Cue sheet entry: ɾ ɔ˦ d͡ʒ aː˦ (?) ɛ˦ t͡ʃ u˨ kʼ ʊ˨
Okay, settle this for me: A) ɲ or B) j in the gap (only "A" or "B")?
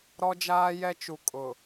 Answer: B